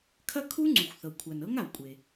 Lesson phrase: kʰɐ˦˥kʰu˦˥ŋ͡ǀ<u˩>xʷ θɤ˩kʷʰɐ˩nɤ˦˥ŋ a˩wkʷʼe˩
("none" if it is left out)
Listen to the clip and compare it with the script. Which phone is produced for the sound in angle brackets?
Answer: u˩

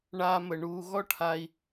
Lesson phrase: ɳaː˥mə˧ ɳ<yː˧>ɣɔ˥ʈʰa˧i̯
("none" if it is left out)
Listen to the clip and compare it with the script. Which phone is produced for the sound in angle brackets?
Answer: uː˧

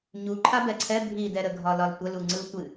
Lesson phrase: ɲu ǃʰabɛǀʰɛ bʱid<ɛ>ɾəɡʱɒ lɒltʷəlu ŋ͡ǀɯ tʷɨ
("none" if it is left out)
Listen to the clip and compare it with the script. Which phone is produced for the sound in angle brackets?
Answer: ɛ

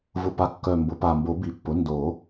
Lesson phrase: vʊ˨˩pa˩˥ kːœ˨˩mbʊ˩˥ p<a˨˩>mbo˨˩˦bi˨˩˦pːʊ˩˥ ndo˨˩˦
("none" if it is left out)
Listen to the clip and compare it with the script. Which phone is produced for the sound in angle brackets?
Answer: a˨˩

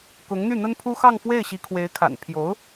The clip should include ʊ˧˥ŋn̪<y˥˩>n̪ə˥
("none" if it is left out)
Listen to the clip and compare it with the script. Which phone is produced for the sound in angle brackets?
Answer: y˥˩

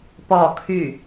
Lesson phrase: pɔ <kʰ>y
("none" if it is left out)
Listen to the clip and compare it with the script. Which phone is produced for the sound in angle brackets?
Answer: kʰ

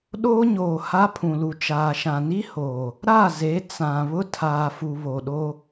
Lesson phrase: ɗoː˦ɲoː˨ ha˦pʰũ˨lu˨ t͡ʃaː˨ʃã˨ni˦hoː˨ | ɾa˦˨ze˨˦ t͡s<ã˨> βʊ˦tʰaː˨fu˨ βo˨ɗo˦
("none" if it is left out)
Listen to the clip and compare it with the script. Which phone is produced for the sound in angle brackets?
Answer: ã˨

